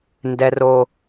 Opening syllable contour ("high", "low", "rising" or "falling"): high